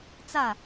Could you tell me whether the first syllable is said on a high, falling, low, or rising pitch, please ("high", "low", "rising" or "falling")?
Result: falling